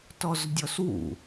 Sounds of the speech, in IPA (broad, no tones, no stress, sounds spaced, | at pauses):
t ɔ z dʲ ɔ s w ṵ